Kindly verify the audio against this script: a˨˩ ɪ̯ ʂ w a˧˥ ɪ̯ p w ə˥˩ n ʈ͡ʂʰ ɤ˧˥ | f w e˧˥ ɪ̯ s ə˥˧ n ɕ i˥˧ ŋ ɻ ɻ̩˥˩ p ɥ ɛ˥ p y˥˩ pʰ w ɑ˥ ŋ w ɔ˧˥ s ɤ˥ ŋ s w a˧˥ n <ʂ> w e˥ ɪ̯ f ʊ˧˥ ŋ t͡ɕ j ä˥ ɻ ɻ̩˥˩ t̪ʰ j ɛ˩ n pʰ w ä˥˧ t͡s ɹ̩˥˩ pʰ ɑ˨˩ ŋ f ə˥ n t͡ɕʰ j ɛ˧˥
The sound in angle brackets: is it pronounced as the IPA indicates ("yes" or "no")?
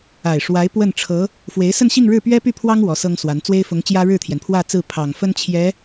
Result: no